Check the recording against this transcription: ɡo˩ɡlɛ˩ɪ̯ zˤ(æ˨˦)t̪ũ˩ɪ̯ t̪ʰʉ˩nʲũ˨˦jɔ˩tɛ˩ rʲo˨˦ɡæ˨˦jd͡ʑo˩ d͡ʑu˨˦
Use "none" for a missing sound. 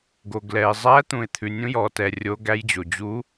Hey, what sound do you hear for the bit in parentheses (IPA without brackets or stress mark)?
æ˨˦